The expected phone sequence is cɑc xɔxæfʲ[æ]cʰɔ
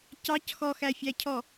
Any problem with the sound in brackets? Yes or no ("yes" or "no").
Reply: no